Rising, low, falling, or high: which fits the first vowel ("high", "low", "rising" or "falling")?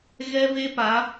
high